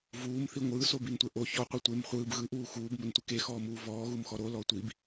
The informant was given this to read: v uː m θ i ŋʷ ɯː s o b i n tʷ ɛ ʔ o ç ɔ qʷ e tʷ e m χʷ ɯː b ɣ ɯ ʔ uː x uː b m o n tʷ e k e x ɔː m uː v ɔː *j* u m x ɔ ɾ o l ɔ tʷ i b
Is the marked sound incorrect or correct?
incorrect